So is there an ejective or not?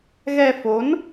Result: no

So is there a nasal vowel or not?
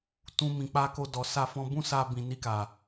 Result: yes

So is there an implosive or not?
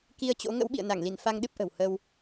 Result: yes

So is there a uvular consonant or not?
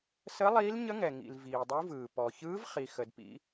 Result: yes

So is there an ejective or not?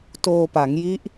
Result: no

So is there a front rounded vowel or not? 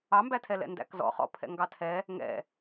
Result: no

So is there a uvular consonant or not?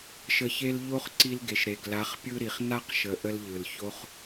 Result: yes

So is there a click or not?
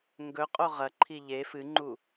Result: yes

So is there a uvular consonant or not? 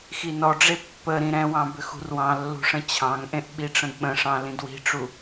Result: no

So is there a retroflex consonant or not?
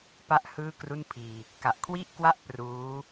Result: no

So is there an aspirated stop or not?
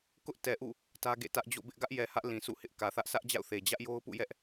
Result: no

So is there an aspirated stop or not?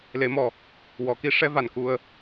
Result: no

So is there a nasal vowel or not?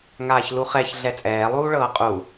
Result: no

